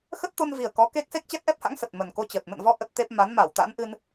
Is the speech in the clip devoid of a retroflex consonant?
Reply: yes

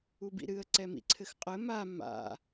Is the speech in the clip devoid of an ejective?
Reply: no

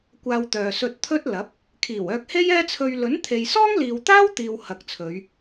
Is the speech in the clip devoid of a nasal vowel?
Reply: yes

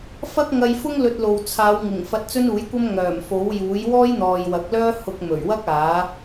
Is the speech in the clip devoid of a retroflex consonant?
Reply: yes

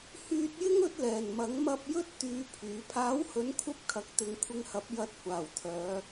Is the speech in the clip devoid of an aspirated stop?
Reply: no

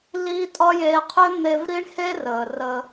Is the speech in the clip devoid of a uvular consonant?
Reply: no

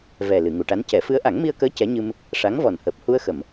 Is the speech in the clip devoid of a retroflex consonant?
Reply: no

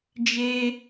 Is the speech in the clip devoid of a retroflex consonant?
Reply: yes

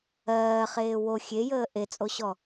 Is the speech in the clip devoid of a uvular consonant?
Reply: no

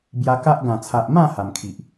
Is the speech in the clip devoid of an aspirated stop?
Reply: no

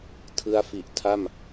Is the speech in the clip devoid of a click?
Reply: yes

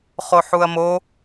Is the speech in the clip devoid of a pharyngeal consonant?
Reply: no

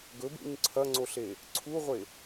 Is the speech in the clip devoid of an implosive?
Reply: yes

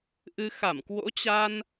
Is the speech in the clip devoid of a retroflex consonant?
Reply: yes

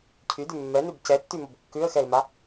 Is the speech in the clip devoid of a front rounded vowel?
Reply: no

